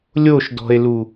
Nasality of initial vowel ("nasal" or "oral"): oral